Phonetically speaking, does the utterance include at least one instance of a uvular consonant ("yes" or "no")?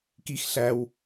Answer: no